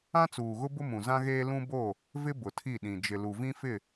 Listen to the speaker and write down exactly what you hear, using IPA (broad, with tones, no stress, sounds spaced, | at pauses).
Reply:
ã˦ t͡s uː˨ ɣ ʊ˦ b ʊ˦ m ũ˨ z ã˦ ɣ eː˦ l ũ˦ b o˦˨ | v ɪ˦ b ʊ˨ tʰ i˦˨ ɗ ĩ˨ d͡ʒ ɪ˨ l u˨ v ĩ˦ f ɪ˦˨